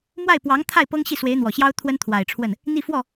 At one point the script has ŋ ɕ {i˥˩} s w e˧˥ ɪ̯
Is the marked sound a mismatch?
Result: no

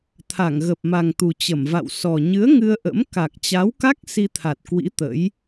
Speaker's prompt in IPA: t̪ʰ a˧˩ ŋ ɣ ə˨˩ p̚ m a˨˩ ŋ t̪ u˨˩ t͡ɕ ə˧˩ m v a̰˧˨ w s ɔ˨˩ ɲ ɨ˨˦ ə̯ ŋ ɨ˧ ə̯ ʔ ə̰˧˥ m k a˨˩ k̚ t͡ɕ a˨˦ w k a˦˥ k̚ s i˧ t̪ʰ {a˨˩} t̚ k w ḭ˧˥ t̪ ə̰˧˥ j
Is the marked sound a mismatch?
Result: no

